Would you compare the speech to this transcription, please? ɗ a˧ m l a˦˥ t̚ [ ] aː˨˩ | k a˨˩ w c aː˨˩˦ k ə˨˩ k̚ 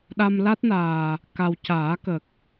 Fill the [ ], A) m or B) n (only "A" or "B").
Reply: B